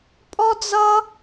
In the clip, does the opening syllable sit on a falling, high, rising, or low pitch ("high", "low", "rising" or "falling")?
high